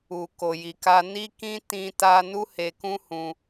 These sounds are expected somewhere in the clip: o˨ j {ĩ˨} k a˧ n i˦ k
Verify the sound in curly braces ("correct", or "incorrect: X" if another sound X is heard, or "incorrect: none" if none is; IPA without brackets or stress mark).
incorrect: i˨